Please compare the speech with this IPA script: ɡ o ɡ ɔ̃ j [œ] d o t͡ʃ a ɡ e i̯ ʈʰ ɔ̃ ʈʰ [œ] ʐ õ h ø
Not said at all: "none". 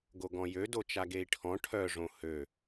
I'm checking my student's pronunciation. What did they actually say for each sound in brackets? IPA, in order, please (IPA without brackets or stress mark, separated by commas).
ø, œ